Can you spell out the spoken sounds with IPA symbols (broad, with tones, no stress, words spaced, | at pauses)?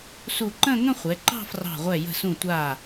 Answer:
su˧˩ǃə̃˥˧ŋə̃˥˧ χʷɛ˩˧ǃɑ̤˥˧frɑ̤˧˩ʁʷɛ˧˩ jə̤˧˩sũ˧˩tʷa˧˩